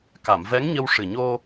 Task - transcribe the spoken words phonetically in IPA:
ka˨˩˨mvɛ˧˥ŋɲə˧w ʂɨ˨˩ɲo˧

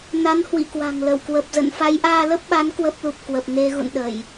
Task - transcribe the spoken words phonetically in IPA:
na˨˦nhwḭ˧˨ kwa̤˨˩ŋlə˧˩w kwə˨˩p̚zə̰˧˨n fa˨˦jʔaː˧lə˦˥p̚ɓa˨˦n kwə˦˥p̚lu˨˩p̚ kwə˨˩p̚ne˧ɣṵ˧˨nɗə˧˩˨j

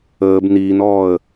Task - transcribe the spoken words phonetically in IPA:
əːb niːnɔːə̯

